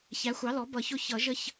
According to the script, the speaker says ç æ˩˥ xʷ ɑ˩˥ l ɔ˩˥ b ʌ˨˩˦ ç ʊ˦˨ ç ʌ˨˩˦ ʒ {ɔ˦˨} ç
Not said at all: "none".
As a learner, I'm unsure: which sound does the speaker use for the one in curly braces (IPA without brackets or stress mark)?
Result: ə˦˨